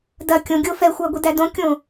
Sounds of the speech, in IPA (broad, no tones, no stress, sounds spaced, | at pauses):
d ɐ kʲ õ ɡʲ o f ɛ xʷ æ ɡʷ e d æ d õ kʲ õ